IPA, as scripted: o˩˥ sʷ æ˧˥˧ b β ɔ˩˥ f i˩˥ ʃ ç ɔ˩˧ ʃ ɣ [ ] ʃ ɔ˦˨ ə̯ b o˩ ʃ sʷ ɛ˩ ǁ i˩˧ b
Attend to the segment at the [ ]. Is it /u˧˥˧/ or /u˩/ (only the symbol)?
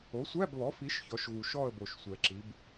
u˩